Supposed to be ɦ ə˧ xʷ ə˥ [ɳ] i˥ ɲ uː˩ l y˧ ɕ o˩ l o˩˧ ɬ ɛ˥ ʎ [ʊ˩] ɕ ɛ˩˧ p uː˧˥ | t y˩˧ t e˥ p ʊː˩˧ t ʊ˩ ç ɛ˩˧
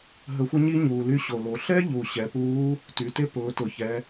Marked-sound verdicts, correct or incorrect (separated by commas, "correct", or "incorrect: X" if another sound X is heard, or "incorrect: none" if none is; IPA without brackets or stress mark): incorrect: ɲ, incorrect: u˩